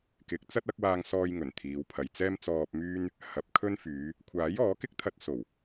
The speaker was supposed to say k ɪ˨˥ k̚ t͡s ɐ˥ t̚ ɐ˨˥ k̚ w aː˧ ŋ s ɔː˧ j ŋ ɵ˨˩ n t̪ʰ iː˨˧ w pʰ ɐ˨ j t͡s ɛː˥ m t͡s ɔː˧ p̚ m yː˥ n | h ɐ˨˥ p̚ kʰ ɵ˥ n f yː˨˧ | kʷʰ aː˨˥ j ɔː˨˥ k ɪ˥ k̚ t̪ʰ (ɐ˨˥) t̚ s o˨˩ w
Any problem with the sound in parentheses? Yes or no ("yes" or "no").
yes